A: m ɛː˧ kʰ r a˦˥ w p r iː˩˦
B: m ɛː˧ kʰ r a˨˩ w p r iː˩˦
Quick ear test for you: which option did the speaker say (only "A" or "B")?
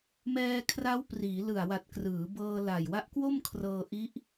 A